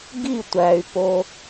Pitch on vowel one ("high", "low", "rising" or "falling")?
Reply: falling